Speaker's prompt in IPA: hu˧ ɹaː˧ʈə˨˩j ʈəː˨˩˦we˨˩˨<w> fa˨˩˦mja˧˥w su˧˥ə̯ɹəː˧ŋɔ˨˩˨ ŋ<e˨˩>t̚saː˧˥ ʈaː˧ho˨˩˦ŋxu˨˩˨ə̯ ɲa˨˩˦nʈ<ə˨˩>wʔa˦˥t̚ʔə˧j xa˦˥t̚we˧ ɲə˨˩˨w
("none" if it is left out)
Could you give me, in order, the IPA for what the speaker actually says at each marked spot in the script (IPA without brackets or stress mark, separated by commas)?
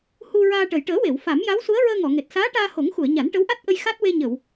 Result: w, e˨˩, ə˧˥